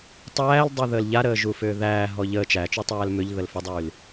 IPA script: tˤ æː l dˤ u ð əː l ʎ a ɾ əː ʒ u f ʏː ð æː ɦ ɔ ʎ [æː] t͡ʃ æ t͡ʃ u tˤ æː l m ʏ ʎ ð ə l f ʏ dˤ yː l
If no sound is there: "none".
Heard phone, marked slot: əː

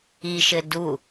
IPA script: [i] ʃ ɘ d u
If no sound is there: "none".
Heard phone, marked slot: i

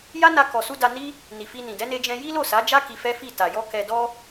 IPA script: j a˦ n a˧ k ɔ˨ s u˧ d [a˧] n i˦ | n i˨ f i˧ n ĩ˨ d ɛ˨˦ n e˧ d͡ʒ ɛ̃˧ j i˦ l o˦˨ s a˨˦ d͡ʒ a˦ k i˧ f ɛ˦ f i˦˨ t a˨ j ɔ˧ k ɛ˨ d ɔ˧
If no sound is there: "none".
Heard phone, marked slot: a˧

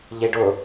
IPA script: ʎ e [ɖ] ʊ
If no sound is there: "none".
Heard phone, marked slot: ɖ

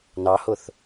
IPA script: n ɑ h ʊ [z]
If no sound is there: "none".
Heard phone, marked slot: θ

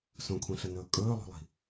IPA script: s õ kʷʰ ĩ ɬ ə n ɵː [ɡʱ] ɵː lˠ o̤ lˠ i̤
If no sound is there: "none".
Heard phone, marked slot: kʼ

